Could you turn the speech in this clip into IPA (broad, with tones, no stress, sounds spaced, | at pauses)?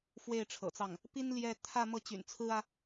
f w e˥˩ ɪ̯ ʈ͡ʂʰ ɤ̰˨˩ t͡s ɑ˥˩ ŋ | p i˥ n l j ɛ˥˧ t̪ʰ ä˥˧ m ɤ˥˩ t͡ɕ y̰˨˩ n t͡sʰ ɹ̩˥ ä˨